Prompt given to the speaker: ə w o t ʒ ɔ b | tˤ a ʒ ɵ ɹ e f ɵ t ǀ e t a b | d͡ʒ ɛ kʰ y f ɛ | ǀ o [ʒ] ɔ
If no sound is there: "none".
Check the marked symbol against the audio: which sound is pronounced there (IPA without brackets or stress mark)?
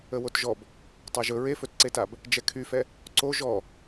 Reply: ʒ